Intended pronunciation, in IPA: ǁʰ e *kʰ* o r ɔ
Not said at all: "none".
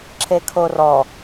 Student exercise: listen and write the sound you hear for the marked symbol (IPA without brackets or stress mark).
kʰ